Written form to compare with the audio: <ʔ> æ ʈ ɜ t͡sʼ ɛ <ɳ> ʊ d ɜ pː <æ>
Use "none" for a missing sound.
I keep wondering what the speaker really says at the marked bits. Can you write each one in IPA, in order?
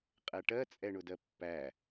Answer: qʼ, ɳ, æ

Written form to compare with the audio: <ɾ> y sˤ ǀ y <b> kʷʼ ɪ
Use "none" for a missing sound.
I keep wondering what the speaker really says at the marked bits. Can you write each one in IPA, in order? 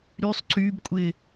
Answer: ɾ, b

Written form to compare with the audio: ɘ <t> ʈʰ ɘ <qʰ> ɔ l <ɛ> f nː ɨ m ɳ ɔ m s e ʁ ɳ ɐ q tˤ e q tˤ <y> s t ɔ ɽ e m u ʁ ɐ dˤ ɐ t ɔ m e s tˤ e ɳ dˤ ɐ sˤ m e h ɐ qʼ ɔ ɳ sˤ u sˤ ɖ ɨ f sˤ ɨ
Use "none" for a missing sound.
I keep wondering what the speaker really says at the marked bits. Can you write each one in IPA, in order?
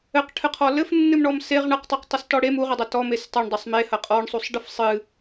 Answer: q, qʰ, ɘ, ɨ

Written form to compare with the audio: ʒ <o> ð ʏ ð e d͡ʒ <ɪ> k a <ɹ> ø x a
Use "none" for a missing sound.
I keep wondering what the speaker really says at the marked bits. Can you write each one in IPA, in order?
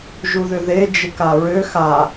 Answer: u, ɪ, ɹ

